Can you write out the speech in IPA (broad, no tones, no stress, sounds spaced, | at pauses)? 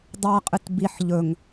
dˤ a qʼ ɨ t b i ħ ʎ ɵ ŋ